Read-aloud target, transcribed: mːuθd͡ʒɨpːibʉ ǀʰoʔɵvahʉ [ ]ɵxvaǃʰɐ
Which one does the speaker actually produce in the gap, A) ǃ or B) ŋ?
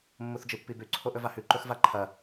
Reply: A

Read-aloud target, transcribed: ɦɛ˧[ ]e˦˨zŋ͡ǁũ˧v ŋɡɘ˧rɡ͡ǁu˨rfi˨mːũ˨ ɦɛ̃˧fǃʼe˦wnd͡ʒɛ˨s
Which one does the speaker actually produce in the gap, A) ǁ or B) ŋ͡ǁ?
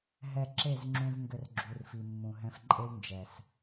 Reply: A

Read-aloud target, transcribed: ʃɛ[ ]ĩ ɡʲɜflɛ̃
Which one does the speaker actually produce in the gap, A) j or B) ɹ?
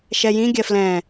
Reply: A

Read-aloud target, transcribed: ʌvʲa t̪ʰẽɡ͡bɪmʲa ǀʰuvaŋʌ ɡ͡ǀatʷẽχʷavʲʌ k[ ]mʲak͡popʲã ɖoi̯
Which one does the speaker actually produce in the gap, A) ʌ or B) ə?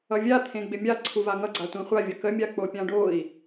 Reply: B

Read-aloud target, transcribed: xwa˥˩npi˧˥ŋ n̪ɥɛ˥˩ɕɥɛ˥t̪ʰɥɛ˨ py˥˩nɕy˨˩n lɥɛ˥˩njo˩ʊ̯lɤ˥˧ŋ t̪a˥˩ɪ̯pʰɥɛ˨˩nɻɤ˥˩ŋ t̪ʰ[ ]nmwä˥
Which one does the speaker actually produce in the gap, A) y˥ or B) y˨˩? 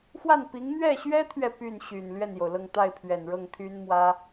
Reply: A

